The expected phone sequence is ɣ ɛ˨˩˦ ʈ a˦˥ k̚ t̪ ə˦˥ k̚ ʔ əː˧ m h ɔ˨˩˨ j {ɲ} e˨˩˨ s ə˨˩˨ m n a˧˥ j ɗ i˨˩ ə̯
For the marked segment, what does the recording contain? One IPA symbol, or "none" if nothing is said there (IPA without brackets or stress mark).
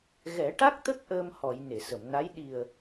n